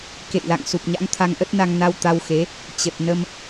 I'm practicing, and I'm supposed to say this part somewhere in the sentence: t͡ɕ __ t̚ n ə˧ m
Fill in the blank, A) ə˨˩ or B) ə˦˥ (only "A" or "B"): A